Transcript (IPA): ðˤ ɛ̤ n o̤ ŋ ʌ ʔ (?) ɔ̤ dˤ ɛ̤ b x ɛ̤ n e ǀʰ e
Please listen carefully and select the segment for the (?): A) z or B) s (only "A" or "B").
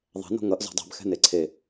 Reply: A